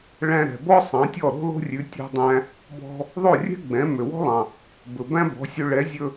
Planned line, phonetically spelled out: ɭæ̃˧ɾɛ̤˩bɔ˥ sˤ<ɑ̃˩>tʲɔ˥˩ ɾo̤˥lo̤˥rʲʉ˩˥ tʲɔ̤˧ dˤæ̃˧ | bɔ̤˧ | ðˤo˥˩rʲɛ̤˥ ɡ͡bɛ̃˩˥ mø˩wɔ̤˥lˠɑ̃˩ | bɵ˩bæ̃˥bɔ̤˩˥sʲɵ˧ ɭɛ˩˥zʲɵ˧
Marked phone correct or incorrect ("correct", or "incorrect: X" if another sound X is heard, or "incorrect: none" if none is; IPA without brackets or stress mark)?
incorrect: ɑ̃˩˥